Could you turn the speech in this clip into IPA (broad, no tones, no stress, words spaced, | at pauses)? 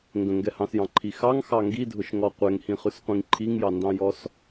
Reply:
ŋɡə̃ŋɡɛhɑ̃sjɑ̃ ǃʰixɑŋxɑ ŋɡidʱʊʃŋɔ qʷɛŋhĩχʉsqʷĩŋ ǃʰiŋjɑndɑ̃jɔs